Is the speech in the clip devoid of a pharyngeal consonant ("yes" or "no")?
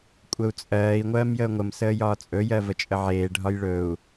no